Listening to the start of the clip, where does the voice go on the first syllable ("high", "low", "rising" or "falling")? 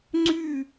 falling